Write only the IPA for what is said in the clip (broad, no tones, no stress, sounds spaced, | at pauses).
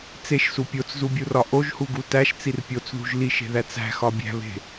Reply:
t͡s e ʃ s u pʲ o t͡s z u bʲ u r ɒ ʔ o ʒ h u ɡ u t æ ʃ t͡s i r pʲ o t͡s ð ṳ ʒ l i ʃ e̤ ð æ t͡s æ̤ x ɒ bʲ æ̤ β e̤